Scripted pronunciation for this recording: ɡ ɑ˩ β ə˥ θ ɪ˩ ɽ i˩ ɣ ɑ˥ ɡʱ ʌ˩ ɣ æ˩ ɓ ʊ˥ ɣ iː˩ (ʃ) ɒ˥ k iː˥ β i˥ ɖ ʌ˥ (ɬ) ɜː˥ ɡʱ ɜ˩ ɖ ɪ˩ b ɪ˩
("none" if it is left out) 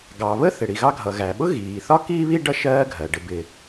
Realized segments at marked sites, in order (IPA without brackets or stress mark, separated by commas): θ, ʃ